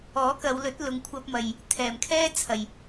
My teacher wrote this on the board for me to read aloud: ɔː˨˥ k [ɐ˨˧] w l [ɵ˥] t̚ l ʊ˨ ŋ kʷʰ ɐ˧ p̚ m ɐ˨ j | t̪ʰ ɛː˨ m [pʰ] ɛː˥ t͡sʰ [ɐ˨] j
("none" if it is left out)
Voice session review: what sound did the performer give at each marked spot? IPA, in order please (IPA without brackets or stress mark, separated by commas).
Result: ɐ˨˧, ɵ˨˥, kʰ, ɐ˨